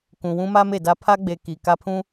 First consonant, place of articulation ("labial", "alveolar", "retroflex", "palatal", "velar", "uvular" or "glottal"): velar